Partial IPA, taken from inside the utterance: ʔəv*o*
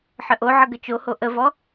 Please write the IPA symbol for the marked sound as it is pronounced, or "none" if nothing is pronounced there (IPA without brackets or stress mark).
ɔ